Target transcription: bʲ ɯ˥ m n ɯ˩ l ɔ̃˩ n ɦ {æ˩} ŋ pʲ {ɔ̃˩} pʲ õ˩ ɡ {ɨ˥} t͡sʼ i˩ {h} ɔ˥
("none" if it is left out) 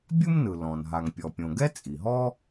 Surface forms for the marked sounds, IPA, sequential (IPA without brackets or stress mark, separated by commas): a˩, ɔ˩, ɛ˥, ɦ